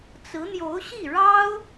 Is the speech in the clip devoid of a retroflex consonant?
no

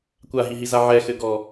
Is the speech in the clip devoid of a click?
yes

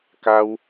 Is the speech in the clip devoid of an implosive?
yes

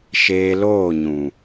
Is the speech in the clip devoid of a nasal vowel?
no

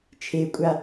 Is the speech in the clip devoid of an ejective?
no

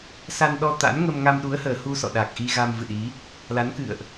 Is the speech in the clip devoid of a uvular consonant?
yes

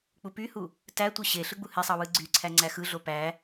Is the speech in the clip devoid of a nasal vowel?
yes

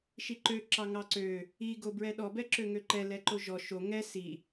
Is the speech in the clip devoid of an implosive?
no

